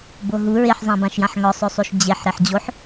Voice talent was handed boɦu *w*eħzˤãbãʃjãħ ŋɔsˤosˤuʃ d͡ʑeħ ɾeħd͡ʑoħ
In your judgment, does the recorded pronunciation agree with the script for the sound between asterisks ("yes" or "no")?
no